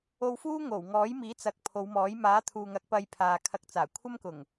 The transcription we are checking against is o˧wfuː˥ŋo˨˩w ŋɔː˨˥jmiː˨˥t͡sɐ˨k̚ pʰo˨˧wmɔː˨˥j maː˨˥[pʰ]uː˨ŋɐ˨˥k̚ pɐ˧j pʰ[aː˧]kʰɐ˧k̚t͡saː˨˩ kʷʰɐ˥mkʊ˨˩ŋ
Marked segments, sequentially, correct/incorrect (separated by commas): incorrect, incorrect